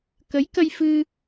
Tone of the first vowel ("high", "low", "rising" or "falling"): rising